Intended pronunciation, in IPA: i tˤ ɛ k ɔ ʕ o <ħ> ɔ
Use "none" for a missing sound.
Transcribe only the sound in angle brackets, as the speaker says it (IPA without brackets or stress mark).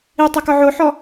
ħ